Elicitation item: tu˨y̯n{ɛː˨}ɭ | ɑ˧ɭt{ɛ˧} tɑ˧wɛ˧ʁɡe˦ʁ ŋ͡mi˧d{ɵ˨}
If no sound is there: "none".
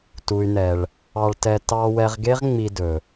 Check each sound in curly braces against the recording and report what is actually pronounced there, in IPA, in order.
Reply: ɛ˨, ɛ˧, ɵ˨

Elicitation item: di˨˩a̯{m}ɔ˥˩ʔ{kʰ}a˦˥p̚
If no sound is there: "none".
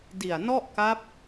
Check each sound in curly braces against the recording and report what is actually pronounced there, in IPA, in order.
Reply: n, k

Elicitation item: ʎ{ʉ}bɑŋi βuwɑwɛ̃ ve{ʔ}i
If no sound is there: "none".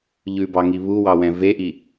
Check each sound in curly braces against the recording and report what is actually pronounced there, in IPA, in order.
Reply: ʉ, ʔ

